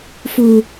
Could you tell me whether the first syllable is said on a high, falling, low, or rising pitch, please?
low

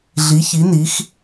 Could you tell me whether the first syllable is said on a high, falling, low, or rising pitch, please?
rising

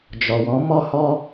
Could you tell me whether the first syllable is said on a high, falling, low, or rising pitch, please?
low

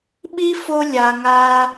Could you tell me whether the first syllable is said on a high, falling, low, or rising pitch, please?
high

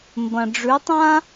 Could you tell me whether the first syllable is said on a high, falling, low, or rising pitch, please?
low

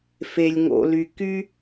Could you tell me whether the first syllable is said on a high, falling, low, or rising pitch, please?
low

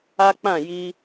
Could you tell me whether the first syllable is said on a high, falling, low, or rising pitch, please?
high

